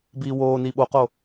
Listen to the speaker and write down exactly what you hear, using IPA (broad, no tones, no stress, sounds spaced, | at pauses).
b iː w oː n i ɓ o q o